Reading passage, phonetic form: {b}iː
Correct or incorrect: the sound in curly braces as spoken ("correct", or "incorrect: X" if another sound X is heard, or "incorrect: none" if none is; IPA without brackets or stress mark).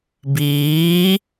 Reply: correct